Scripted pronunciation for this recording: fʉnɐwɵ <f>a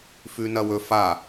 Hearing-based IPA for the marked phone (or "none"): f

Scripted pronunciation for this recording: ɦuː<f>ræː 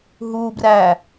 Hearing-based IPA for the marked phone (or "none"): b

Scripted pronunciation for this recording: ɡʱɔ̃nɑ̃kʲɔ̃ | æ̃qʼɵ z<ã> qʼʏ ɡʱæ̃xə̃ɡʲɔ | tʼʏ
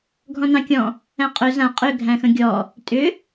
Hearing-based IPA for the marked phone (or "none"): ã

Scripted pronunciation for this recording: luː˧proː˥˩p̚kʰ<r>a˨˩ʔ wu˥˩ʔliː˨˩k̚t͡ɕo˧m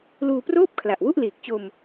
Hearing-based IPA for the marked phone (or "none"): l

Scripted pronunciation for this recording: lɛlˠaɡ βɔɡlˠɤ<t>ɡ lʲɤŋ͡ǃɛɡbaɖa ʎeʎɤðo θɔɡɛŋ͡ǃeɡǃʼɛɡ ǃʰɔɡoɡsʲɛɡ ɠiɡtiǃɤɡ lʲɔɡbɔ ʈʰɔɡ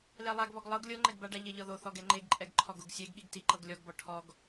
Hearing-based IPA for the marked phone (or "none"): none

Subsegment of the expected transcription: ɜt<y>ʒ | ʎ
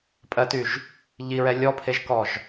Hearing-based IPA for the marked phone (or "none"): y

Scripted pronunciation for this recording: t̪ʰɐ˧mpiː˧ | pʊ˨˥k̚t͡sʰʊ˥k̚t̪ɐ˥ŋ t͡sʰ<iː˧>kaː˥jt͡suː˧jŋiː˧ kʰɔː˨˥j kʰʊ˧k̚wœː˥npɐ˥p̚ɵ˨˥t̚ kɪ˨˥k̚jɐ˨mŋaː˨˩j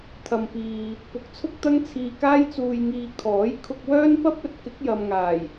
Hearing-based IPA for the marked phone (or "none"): iː˧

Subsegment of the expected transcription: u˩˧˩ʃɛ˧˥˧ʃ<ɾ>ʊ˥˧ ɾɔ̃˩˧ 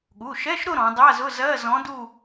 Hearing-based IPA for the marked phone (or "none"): ɾ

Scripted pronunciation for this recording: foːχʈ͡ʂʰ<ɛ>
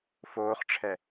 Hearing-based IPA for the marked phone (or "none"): ɛ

